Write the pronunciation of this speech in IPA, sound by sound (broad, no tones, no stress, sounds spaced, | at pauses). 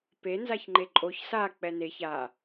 p e n z a ç ŋ͡ǃ e ǃʼ o ç s a k͡p ɛ n e ç a